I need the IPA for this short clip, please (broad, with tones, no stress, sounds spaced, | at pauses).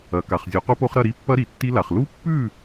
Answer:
ɐ˨˩˦ k a˨ χ zʲ o˨˩˦ q u˦˥ p o˦˥ χ ɾ ɐ˥˨ ɾ i˦˥ pː ɐ˦˥ ɾ i˨ tː i˦˥ l a˨ χ l u˦˥ pː ʉ˥˨